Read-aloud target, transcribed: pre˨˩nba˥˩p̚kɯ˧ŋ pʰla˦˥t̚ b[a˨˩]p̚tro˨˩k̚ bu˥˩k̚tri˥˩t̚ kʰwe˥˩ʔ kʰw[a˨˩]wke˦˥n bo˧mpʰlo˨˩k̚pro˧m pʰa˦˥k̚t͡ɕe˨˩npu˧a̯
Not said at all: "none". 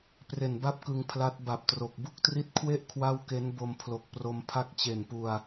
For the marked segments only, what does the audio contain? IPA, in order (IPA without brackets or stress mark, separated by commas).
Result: a˨˩, a˥˩